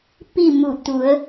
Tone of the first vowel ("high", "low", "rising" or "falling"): falling